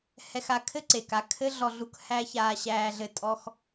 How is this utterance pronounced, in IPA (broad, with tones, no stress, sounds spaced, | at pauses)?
h ɛ˧ x a˧ kʰ ɘ˥ ǀ e˩ k a˧ kʰ ɘ˥ ɮ ɔ˧ ɮ u˧ k h æ˥ ç aː˧ ɕ æː˧ ɮ ɘ˧ tʼ ɔ˧ x